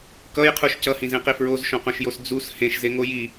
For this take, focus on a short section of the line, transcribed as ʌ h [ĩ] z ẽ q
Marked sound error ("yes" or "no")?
no